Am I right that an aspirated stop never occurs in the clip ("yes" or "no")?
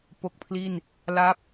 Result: no